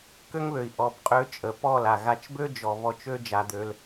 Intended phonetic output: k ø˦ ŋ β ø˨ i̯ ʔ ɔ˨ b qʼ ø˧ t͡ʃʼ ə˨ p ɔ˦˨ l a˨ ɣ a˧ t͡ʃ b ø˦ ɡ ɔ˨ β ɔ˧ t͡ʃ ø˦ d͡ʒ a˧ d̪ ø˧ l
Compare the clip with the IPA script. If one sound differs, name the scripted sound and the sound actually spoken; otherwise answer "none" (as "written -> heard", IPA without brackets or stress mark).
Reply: ɡ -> d͡ʒ